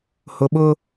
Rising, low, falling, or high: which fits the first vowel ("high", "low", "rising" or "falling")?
low